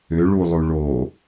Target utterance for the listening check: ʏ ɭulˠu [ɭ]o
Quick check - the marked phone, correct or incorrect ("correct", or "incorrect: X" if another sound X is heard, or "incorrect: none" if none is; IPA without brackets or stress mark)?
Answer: correct